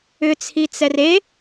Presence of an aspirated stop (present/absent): present